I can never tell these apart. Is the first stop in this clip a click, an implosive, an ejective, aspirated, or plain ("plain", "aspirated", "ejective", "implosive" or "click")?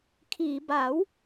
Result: aspirated